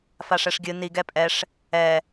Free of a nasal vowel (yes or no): yes